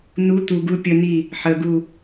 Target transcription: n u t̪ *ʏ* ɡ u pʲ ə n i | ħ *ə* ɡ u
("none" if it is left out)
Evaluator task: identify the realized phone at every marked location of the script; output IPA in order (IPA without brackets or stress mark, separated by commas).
u, ə